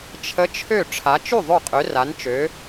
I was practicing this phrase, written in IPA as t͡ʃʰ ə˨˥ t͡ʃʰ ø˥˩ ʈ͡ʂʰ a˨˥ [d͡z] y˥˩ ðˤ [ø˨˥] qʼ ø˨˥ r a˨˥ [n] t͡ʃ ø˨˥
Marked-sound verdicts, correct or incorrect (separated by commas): incorrect, incorrect, correct